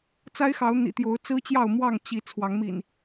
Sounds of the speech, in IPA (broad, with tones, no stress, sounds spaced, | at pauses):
t͡s a˦ ɪ̯ x ɑ˨˦ ʊ̯ n̪ ḭ˨˩ t̪ j o˨˦ ʊ̯ t͡s ɹ̩˦ t͡ɕ j ɑ˥˨ ʊ̯ m w ɑ˥˨ ŋ t͡ɕ i˨˦ t͡sʰ w ɑ˨˦ ŋ m ḭ˨˩ n